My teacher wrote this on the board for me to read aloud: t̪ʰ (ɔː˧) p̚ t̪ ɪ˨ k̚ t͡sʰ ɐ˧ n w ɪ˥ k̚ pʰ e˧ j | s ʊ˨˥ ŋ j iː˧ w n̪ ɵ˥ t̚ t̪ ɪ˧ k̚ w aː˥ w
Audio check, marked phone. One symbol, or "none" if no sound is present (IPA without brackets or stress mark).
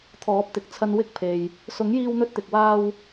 ɔː˨˥